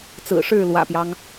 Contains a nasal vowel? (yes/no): no